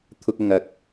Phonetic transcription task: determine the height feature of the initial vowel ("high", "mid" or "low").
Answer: high